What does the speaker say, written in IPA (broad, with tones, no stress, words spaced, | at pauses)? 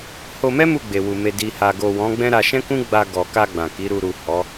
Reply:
ho˧mɛ˦ mu˦˨ɡ͡be˨wu˨ me˨di˨ha˨ɡo˨ wɔ̃˨˦ɡ͡bɛ̃˦ ɾa˧ʃɛ̃˦ kũ˦ɡ͡ba˧ɡɔ˨ka˧ ɡ͡bã˨ki˨˦ɾu˧ ɾu˨ hɔ˨˦